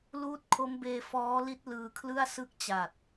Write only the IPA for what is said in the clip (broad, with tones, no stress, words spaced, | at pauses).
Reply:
luː˦˥t̚ kʰo˦˥mbeː˧ fɔː˦˥li˦˥t̚ lɯː˧kʰlɯ˥˩a̯ sɯ˦˥k̚ t͡ɕa˨˩t̚